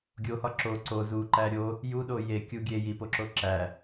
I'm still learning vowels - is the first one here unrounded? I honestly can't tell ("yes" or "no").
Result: no